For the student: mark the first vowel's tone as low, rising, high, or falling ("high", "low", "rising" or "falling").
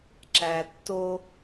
low